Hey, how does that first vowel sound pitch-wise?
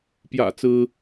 low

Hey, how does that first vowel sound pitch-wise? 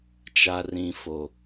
low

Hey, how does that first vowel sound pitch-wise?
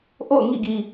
falling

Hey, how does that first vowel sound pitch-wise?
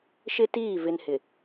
high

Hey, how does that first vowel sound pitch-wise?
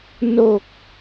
low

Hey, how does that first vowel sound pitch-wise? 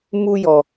high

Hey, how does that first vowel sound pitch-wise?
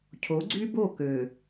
rising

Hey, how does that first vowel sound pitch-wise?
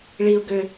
high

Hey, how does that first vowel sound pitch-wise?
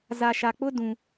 low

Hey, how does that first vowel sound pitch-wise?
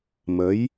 rising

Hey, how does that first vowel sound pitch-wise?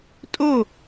falling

